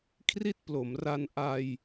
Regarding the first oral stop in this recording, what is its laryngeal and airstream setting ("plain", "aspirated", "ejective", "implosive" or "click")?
aspirated